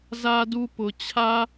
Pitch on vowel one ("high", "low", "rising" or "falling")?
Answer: high